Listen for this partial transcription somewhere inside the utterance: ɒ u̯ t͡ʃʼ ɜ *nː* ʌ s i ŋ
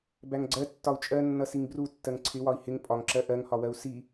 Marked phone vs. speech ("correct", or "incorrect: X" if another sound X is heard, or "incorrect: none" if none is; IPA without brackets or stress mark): correct